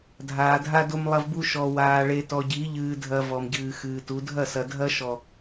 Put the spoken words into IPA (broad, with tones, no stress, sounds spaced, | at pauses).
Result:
dʱ aː˨ dʱ a˦ d o˦ m lˠ ɐ˦ v b u˦ ʃ ɔ˨ w aː˨ ɭ e˨ t ɔ˨ ɟ i˨˦ ʎ ɨː˨ dʱ ɐ˨ v ɔ˨ m ɟ ɨː˨ x ɨː˨ t u˨˦ dʱ ɐ˦˨ s ɐ˨ dʱ ɐ˦ ʃ ɔ˨